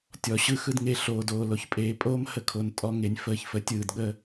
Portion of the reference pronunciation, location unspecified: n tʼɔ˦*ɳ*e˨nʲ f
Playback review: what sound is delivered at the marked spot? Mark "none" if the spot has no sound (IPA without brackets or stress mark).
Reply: ŋ